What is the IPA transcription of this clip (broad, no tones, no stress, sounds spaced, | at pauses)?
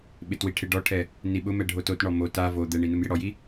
ɓ ɪ t w i ʈʰ e ɖ ɔ ʈʰ ɛ | n i ɓ ʊ m ɛ ɖʱ o t o t ɳ ɔ m o t a v o d̪ ɛ ɳ i n u m j ɪ ɽ ɔ j i